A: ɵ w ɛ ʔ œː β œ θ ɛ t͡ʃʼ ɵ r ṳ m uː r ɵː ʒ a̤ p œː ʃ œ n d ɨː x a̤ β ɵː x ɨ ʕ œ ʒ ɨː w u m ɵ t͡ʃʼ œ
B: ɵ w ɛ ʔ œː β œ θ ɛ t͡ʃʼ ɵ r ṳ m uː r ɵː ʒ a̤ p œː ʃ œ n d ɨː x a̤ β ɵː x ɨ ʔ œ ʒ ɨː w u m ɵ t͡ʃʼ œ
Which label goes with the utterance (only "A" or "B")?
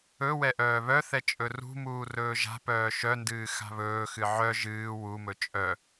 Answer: A